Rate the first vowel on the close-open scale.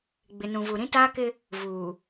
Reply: close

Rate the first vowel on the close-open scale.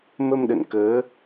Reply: mid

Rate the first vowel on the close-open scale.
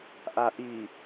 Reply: open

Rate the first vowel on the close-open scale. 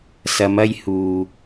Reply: open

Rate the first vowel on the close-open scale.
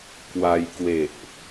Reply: open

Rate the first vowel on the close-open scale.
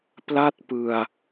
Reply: open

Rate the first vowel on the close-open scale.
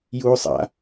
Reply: close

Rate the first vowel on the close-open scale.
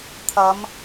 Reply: open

